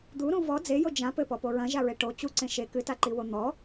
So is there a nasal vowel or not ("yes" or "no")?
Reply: yes